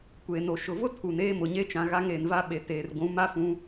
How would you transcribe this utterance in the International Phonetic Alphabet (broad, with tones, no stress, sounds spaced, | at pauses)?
kʷ eː˨ n o˨ ʃ ʊ˨ v ʊ˦ tʰ u˨ n eː˦ m ʊ˨ ɲ e˦ t͡ʃ ã˨ ɣ a˦ ŋ eː˨ n v a˦ ɓ e˨ t eː˨ r ɡʷ ũ˨˦ m a˦ f ũ˦